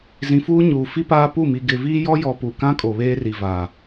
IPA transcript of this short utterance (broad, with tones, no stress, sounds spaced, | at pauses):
z ĩ˨ f uː˦ ɲ uː˨ f i˦ p aː˦ p u˦˨ m i˨ ɡ ɪ˨ v iː˦ j ɔ˦ j ɔ˨ p u˨ k ã˦ kʼ o˨ β eː˦ r i˨ v aː˨